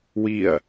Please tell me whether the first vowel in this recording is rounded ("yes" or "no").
no